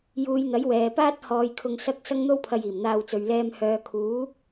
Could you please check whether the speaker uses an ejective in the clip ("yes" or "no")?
no